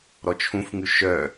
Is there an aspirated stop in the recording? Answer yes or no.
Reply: yes